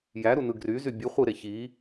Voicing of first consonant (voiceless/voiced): voiced